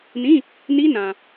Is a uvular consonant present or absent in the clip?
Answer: absent